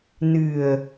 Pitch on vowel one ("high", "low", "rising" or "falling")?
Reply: low